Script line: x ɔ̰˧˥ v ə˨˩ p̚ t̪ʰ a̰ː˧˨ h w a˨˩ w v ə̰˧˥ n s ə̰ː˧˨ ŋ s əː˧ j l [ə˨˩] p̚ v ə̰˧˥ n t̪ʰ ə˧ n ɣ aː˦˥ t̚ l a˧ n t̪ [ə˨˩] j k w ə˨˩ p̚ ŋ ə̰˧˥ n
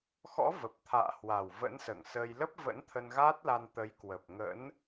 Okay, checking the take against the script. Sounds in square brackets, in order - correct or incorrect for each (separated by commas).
incorrect, incorrect